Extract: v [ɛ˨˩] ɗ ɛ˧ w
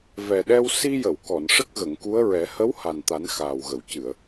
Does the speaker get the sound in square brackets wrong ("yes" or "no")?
no